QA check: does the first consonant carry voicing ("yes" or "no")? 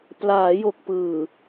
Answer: no